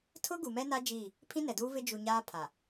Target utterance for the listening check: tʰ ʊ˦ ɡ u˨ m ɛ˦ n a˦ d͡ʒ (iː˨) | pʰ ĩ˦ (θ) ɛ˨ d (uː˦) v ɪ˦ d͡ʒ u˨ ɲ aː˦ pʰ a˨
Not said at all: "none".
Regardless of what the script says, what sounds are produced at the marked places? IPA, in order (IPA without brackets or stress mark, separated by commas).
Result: iː˦˨, n, uː˦